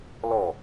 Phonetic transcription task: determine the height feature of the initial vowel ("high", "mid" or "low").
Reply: mid